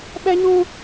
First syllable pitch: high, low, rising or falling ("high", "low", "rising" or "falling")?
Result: high